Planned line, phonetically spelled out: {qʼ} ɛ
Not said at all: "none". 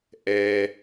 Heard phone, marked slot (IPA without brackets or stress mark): ʔ